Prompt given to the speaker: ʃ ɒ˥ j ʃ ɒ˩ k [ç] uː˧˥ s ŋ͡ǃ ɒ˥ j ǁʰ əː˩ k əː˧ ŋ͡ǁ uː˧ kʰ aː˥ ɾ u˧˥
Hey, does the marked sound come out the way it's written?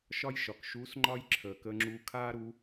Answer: no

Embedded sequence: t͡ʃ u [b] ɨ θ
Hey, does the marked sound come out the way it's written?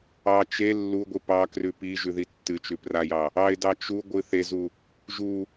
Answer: no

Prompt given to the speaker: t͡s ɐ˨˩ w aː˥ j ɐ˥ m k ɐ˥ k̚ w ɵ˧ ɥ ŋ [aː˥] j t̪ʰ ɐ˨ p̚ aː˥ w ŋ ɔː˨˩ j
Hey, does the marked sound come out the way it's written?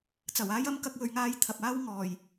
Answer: yes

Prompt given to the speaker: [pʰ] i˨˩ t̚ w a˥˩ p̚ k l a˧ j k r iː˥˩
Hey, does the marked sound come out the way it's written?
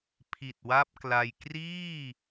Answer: yes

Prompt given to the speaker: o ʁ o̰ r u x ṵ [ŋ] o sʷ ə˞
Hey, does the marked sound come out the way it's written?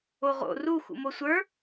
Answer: no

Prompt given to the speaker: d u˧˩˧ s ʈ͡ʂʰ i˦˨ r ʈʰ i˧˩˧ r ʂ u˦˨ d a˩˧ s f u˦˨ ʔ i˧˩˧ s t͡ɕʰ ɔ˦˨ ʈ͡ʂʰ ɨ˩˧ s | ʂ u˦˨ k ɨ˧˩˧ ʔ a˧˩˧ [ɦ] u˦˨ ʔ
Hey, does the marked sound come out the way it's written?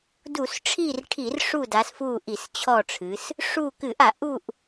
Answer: no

